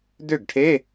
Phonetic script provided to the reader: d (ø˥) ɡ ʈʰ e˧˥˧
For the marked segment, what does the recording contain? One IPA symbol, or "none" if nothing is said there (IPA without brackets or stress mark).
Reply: ø˥˩